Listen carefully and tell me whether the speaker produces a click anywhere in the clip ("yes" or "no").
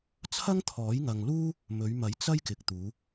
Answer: no